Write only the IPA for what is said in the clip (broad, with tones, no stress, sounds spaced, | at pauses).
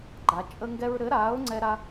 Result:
ɡ͡ǃ a˩˧ t͡ʃʼ ə˦ ŋ ɡ ɛ˦ ɹ ɾ ɘ˨˥ ɾ aː˨˥ ʊ̯ ŋ͡ǀ ɛ˦ ɾ a˦